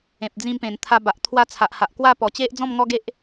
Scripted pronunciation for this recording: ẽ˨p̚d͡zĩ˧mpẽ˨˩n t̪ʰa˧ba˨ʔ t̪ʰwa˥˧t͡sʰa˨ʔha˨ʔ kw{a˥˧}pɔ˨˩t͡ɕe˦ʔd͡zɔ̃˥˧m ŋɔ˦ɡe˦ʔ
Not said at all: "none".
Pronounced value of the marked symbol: a˥˧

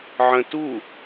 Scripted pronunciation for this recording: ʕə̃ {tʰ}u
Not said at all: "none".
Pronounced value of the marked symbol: t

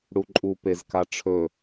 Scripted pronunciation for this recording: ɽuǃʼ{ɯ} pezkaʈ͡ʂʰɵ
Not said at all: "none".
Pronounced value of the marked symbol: u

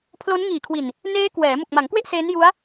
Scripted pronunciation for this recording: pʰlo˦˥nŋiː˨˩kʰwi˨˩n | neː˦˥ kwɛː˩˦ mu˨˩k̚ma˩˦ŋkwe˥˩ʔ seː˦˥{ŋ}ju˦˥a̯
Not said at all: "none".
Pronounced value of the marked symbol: n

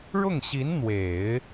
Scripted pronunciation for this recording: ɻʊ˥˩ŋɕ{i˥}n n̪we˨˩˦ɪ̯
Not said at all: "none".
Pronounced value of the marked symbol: i˧˥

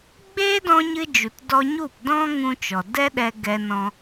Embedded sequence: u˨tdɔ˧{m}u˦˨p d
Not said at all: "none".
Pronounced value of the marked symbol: ɲ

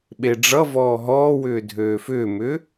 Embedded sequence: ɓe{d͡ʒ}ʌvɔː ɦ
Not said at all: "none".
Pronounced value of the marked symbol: ɖ͡ʐ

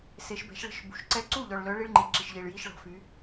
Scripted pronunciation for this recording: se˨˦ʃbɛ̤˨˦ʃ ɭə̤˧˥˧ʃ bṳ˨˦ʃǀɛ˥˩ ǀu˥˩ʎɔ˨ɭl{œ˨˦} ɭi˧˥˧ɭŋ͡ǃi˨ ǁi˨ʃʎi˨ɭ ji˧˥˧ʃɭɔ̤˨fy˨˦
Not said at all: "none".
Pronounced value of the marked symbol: œ˨˦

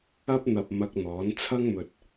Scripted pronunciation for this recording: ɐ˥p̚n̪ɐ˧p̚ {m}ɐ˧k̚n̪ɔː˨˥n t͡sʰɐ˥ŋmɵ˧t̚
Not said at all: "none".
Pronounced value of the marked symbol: m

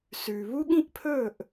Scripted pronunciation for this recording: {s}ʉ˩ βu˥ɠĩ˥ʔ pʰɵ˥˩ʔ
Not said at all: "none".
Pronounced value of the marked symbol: s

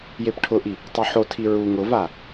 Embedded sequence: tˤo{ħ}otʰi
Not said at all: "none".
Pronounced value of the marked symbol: ħ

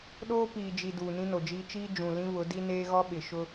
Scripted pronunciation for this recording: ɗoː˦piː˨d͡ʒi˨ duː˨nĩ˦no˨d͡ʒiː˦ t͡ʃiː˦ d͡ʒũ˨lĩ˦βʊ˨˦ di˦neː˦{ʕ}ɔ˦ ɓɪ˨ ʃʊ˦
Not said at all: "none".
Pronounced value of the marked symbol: ɣ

